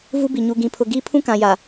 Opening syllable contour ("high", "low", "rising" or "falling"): high